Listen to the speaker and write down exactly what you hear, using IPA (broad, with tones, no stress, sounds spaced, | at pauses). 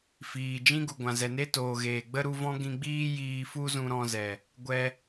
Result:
f iː˨ d͡ʒ ĩ˦ ɡ u˨ ɡʷ ã˨ z ɛ˨ n e˦ t oː˨ ɣ eː˨ ɡ͡b ə˦ ɾ u˧ v ɔ̃˦ ɡ ĩ˧ ɡ͡b iː˦ j iː˧ f u˦ z ũ˧ ɾ ɔ̃˧ z ɛ˨ | ɡʷ ɛ˦